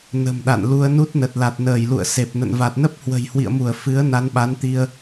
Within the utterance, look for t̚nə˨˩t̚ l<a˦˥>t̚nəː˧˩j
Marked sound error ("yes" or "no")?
yes